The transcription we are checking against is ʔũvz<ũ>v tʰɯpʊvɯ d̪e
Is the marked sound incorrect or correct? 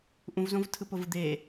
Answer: incorrect